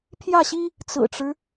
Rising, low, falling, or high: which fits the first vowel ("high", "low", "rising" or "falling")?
falling